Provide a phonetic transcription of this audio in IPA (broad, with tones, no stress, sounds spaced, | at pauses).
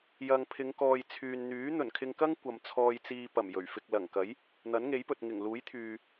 j ɐ˨ ŋ pʰ ɪ˨˧ ŋ k ɔː˨ j t͡sʰ yː˨ n n̪ yː˨˥ n̪ ɵ˨˩ n kʰ ɪ˧ ŋ k ɐ˥ ŋ kʷ ɐ˨ m t͡sʰ ɔː˧ j t͡s iː˧ p ɐ˨˩ m j ɵ˨˩ ɥ f ɪ˧ k̚ l ɐ˨˩ ŋ k ɐ˨˥ j | n̪ ɐ˨˥ n ŋ e˨˥ j p ɵ˨ t̚ ŋ ɪ˨˩ ŋ l uː˨˥ j t̪ʰ yː˨